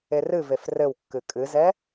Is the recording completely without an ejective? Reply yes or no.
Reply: no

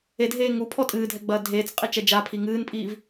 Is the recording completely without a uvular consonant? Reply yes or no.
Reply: no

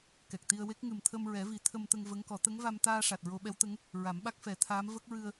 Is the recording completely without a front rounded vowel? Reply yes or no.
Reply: yes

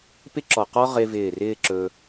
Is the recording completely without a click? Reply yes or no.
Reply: no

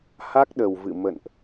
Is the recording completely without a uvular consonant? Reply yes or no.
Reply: yes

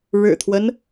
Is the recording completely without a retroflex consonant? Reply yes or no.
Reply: no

